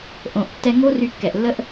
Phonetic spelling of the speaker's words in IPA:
ʔ õ˩ ʔ tː ɛ˧ ŋ o˥ r y˧ kː ɛ˩ ʔ lː ə˥ ʔ

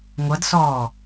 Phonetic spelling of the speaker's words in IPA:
ŋʷ ʌ d s ɔː

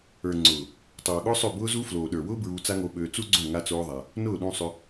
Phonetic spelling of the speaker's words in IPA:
ə˞˨ ŋ͡ǀ ʊː˨ | tˤ oː˨ ɠ ʊː˦ sˤ ø˦˨ b ʊː˦ z u˦ f l oː˨ ɗ ə˞˨ w ʊː˦ b ɹ uː˧ t͡s a˦ ŋ o˧ ɓ øː˧ t͡s u˦ ɡ͡ǀ õ˦˨ ŋ a˦ t͡s oː˦ ðˤ a˧ | n ʊː˦˨ ɗ ũ˧ sˤ ʏ˧

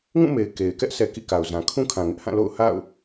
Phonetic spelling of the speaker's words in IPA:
ŋ ũ˦˨ m e˨ ɪ̯ k e˨ ɪ̯ k ɛ˦ ʔ s ɛ˨ k ḭ˦˨ k a˨ ʊ̯ z ã˨ kʰ ũ˦ kʰ ã˨ ŋ ɪ˦ ʔ h ã˦˨ l o̰˦˨ ʊ̯ h a̰˦˨ ʊ̯

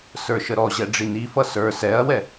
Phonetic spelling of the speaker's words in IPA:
s ə˞ ʃ ə ɾ ɔ ʑ ɛ ɖ͡ʐ i n i f ʌ s ə˞ s ɛ ɐ̯ w ɛ

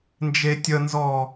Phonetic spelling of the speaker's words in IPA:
n d͡ʒ e tʲ ə n z ɔ

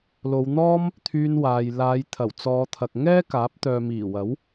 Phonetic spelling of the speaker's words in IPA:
l o˨˧ w n̪ ɔː˥ m | t̪ʰ yː˧ n w aː˨ j l aː˨˧ j t̪ʰ ɐ˨˩ w t͡s ɔː˨˧ t̪ʰ ɐ˨ k̚ ŋ ɛː˥ k aː˨˥ p̚ t̪ œː˨ m iː˨˩ w ɐ˨˥ w

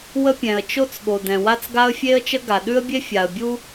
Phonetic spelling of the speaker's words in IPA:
w ə˥ pʲ ɛ̃˩ ə̯ t͡ʃ o˥ t͡s ɠ o˩ d ɛ̃˩ w a˥ t͡s ɡ a˥ ə̯ fʲ e˥ ə̯ t͡ʃ ə˥ ɡ a˩ ɗ ʉ˥ ə̯ bʲ e˥ fʲ a˩ ə̯ bʲ u˥

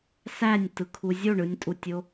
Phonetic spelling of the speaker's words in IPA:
s æ nʲ t ɯ kʰ u zʲ o ɳ ɯ nʲ tʼ u tʲ o

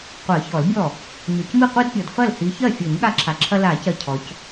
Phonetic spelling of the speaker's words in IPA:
qʷ ɜ˨˩˦ ç ɔ˨˩˦ l bʲ ɔ˥˩ | ɲ ɔ˨ c m i˥˩ qʷ i˦ d pʲ ɔ˨ d f ɐ˥˩ l h i˨˦ ç ɜ˥˩ fʲ ɤ˨˩˦ ɲ ɠ a˦ ǁʰ a˨ ǁʰ ɐ˦ l a˨˩˦ c ɜ˨ cʰ ɔ˨˦ c

